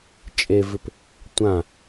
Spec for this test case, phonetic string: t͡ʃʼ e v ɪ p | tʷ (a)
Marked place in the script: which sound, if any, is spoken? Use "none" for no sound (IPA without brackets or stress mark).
ã